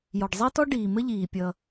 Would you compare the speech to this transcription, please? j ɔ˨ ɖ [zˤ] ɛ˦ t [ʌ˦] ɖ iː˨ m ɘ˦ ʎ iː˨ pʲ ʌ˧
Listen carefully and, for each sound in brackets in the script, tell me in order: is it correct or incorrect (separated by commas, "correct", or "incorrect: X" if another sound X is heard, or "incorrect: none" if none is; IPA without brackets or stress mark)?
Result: correct, incorrect: ɔ˦